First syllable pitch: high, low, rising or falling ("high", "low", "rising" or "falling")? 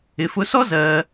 low